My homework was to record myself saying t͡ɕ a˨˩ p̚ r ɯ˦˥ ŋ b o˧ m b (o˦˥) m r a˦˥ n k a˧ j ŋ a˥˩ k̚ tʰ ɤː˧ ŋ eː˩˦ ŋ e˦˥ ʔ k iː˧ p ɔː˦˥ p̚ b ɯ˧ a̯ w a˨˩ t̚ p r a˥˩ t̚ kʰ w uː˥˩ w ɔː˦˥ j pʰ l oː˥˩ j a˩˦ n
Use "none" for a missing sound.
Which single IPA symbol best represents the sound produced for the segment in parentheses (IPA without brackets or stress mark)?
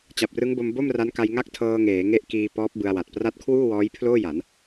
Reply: o˥˩